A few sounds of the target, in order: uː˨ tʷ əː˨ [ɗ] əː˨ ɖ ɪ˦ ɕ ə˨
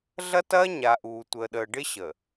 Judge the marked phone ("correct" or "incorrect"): correct